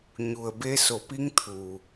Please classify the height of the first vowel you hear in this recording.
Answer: high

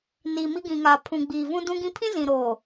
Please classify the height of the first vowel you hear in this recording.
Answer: high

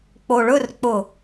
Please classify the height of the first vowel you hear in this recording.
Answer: mid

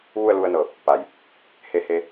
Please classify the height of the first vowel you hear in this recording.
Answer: high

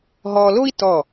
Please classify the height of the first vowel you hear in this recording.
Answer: mid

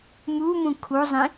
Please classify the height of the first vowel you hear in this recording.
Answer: high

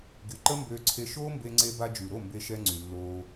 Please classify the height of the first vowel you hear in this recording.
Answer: high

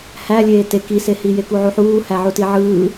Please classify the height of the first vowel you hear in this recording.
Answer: low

